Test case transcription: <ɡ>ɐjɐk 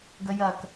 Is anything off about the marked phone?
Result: no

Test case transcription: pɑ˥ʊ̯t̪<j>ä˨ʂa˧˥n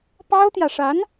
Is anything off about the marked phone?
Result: no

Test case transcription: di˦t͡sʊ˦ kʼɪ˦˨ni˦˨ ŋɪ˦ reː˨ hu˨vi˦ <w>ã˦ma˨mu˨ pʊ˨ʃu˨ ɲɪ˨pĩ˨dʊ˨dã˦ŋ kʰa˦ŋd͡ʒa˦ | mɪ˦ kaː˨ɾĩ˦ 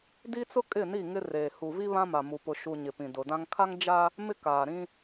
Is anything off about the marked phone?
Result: yes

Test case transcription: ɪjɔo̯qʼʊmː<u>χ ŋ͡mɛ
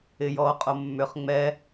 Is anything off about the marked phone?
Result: yes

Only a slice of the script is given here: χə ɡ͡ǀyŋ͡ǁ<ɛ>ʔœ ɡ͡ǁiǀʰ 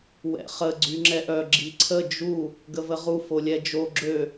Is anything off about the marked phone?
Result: no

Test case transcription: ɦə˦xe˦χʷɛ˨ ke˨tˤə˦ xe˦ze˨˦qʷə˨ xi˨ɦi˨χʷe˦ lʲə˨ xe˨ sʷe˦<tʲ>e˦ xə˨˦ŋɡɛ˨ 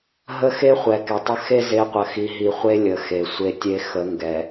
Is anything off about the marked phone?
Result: no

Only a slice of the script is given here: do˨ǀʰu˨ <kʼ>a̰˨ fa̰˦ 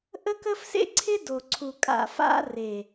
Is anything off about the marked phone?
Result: no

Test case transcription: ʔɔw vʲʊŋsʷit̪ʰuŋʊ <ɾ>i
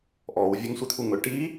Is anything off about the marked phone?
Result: yes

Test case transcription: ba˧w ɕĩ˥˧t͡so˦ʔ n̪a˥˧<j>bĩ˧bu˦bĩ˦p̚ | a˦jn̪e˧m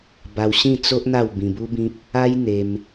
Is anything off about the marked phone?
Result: yes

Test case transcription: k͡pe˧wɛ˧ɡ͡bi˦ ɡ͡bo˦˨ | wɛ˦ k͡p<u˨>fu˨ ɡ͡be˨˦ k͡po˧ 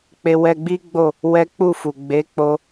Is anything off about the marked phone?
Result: yes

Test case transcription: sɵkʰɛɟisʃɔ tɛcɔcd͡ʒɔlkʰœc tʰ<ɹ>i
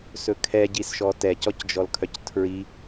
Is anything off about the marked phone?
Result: no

